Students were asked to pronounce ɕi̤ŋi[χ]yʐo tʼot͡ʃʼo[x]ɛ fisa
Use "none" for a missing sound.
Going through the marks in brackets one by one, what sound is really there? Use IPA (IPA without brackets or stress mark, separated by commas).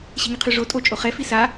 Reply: qʰ, χ